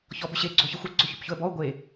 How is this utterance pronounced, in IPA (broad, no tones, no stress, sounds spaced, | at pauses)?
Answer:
ç ɔ b ʏ ɕ e ɡ͡ǀ o ç ə xʷ ə ɡ͡ǀ o ç ʏ p ç ʊ ə̯ b ɔ ʊ̯ ɡʷ e